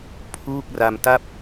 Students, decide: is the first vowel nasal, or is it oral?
oral